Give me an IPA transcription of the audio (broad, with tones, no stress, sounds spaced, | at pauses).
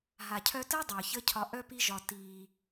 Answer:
ɦ a˨ cʰ œ˧ t əː˦ dˤ œː˨ ç ə˦ cʰ ɒ˧ ʔ œ˦ p i˦ ʒ ɒ˧ t iː˧